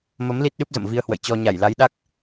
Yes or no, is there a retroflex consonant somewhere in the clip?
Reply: no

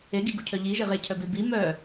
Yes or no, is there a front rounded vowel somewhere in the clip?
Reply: yes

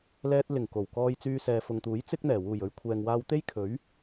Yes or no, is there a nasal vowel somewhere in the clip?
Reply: no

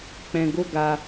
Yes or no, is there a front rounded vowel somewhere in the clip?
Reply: no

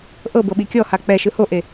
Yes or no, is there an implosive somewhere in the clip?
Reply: yes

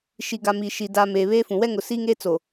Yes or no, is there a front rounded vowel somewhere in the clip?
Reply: no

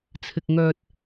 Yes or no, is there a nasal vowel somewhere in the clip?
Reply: no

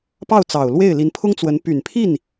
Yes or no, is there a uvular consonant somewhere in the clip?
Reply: no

